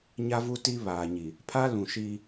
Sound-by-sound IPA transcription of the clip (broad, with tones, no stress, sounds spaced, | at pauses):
ɲ a˦ v u˦ t i˦ β aː˨ ɲ i˨ | pʰ a˦ l ũ˨ ʃ i˦